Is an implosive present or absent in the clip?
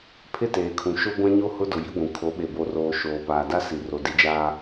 present